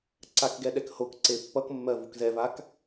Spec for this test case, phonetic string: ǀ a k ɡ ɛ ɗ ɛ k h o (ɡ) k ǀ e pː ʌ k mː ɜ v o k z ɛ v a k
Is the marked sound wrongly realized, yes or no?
yes